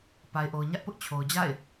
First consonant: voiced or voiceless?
voiceless